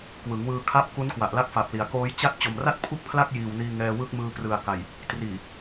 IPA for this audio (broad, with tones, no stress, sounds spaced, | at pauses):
k w ɯ˩˦ ŋ w ɯː˧ kʰ a˦˥ p̚ k u˦˥ n k w a˨˩ ʔ l a˦˥ k̚ f a˨˩ p̚ l i˩˦ a̯ k oː˦˥ j t͡ɕ a˥˩ t̚ t͡ɕ o˨˩ m r a˥˩ t̚ pʰ u˥˩ k̚ pʰ l a˥˩ k̚ j iː˨˩ w n iː˧ ŋ ɛː˧ w ɯ˦˥ k̚ m ɯː˧ p r ɯ˨˩ a̯ k a˨˩ j | t r iː˨˩